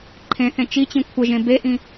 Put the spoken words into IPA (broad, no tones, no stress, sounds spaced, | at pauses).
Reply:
ǃʰ ẽ θ ẽ t͡ʃ i t͡ɕ ĩ kʷʰ ə ʒ ẽ b e ʔ ĩ